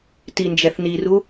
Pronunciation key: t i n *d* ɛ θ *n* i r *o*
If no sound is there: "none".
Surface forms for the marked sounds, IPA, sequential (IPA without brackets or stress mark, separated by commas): d͡ʒ, n, u